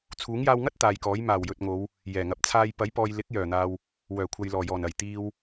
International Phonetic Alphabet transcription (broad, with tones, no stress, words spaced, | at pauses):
t͡sʰuː˨˥ŋjaː˧wŋɐ˥t̚ t̪aː˨j kɔː˨˥j maː˨˩wjɵ˨t̚ŋo˨˧w | jɛː˨˩ŋɐ˨˥p̚t͡sʰaː˧j pɐ˨˥jpɔː˨jlɪ˨˥k̚ jœː˨˩n̪aː˨w | wœː˨˩kʷʰɐ˨jlɔː˨˩jɔː˨˩n ɐ˨˩jt̪iː˨w